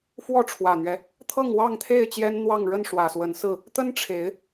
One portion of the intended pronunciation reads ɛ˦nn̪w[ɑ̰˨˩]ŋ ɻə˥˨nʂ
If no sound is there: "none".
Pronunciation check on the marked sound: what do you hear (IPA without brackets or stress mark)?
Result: ɑ˥˨